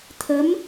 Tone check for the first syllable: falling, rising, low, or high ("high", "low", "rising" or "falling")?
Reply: rising